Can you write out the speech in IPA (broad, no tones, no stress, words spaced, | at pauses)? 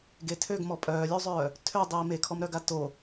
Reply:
ɡetʰøɡ mɔpʼœːlʲuzˤœː | tʰødˤiː mekʰɔmɾœɡa to